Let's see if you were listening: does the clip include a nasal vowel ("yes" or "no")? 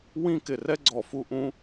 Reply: yes